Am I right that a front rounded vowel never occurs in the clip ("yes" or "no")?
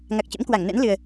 yes